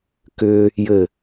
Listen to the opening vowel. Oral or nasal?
oral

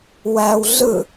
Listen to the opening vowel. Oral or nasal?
oral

